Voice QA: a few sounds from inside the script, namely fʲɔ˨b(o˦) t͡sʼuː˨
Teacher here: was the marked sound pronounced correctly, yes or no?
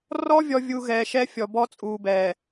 no